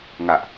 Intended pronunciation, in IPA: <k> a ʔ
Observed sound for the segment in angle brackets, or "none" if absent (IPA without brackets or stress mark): ŋ